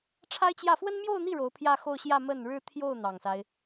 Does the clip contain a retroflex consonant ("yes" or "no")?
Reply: yes